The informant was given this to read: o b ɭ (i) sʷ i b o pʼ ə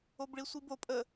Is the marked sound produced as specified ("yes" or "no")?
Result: yes